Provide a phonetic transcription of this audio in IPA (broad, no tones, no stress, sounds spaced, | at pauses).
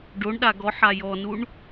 ɖ o ɳ ɗ a ɡ ɔ ħ a j ɔ n u ɳ